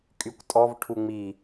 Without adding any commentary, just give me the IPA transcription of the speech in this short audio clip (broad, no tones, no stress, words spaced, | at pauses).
kʼykʷtʼɔv ʈʰuŋ͡mi